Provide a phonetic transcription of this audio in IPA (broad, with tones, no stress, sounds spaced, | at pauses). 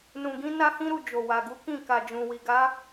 n ũ˨ ɡ ĩ˧ n a˦ h ĩ˦ ɾ u˦˨ d͡ʒ o˨ w a˨ ɡ u˨˦ k ĩ˦˨ k a˨ d͡ʒ ũ˨ w i˨ ɡ a˨˦